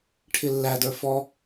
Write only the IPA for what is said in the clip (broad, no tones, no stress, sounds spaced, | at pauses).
ʈʰ ɪ lː æ d ə˞ f ɔ